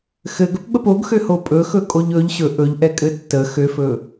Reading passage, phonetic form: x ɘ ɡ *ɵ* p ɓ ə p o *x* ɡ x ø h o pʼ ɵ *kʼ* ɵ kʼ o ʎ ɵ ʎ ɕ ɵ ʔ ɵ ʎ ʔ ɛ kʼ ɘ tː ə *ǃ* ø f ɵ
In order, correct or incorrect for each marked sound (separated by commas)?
correct, incorrect, incorrect, incorrect